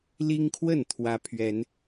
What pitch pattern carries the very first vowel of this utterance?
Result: high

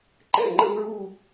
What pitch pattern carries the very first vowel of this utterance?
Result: falling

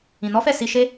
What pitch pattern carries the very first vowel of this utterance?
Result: low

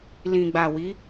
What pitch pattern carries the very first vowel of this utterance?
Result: low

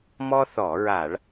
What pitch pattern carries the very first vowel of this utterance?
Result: high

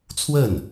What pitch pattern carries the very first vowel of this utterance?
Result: falling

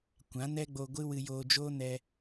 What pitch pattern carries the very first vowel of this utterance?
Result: rising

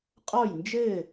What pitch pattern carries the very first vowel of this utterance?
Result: falling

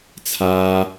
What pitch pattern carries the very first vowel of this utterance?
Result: high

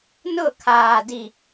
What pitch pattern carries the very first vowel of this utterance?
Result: falling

